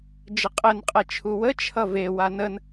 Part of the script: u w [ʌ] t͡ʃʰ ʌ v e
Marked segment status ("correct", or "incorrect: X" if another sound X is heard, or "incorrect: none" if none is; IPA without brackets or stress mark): incorrect: ə